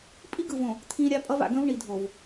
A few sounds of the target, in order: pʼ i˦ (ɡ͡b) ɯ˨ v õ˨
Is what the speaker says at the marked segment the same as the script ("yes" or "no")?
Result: no